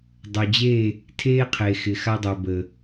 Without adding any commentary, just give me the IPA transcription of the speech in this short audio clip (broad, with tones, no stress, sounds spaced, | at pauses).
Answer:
dˤ ø˨ d͡ʑ e˦˨ | tʰ eː˦ qʰ e˨ x ɪ˨ x a˦ dˤ ø˨ b ə˨